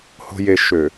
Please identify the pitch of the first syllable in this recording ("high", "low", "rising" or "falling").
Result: low